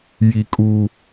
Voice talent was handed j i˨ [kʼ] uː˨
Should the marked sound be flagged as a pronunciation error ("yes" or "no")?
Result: no